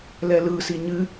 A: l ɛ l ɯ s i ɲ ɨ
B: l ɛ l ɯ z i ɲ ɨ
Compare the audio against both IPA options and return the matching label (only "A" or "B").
A